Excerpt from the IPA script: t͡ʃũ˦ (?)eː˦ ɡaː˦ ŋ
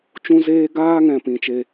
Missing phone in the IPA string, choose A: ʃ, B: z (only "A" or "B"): B